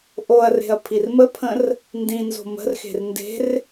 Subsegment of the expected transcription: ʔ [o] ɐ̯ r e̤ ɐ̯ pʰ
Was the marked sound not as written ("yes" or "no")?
no